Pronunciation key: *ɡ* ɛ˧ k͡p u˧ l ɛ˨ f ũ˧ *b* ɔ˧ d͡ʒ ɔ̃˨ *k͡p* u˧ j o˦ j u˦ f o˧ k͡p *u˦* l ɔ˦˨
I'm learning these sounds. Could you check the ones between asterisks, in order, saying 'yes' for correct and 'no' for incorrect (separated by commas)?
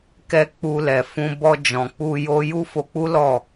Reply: no, yes, yes, yes